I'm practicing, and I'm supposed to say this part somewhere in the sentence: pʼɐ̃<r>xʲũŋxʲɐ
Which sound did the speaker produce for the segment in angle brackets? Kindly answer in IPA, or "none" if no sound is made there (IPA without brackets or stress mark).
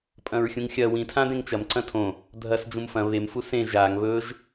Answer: ɹ